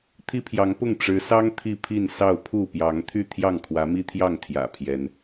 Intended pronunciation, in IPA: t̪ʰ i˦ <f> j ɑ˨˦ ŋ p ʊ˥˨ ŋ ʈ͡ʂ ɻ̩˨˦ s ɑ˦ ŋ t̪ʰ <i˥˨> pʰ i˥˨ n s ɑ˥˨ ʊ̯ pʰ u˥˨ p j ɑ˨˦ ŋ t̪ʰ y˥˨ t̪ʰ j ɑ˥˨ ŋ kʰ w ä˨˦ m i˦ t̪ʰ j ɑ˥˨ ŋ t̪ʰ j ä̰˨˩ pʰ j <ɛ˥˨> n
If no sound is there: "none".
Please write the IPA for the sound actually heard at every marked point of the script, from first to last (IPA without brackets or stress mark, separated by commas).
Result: pʰ, i˥˨, ɛ˨˦